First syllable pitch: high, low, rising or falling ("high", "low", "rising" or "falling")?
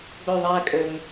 falling